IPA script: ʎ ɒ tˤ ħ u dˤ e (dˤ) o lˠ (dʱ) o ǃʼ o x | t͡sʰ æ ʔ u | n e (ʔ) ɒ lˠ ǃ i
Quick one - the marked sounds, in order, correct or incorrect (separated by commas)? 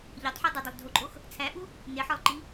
correct, correct, incorrect